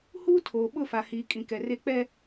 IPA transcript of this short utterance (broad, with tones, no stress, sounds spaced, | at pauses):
h uː˦ tʰ oː˨ ɓ ʊ˦˨ f a˨ h iː˨ kʼ ĩ˨ k ɛ˨ r e˦ k͡p ɛ˦